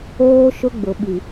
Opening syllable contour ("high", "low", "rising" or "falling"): high